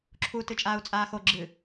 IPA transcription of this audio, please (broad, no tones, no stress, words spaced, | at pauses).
ǁʰu tɨt͡ʃʼaːu̯t͡sʼaːxo ɡ͡ǁɨ